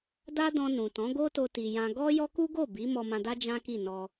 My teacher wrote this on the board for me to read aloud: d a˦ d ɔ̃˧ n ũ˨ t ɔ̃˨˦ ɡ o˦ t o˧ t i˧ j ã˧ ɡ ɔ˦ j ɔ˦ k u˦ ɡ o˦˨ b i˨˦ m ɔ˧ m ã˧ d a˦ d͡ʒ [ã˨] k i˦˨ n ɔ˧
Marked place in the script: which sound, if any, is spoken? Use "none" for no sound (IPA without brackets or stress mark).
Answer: ã˦